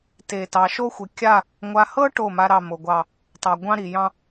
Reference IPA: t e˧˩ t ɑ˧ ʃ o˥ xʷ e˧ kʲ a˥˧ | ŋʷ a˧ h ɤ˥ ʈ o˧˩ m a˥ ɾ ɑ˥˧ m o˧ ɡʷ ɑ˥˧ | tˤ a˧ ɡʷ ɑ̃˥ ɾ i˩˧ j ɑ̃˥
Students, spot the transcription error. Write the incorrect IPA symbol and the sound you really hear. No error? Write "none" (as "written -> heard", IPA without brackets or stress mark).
none